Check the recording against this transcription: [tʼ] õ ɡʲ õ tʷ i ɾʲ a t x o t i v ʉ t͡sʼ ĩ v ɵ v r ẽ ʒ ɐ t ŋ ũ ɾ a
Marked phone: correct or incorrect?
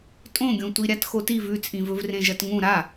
correct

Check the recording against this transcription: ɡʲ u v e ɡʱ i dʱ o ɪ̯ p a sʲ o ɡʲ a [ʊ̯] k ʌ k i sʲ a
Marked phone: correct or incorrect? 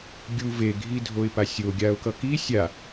correct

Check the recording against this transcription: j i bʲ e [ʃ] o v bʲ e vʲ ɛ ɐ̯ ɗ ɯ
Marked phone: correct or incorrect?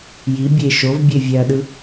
correct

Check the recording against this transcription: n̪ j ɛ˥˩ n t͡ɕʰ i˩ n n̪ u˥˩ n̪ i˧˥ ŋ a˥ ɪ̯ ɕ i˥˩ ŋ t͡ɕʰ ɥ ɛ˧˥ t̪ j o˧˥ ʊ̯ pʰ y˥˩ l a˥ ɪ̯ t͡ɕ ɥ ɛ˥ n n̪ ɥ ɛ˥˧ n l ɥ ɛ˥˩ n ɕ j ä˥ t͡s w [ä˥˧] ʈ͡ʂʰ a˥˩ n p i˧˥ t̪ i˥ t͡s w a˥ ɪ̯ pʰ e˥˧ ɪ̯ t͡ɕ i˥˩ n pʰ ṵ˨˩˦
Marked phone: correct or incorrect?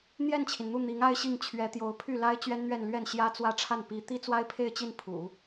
correct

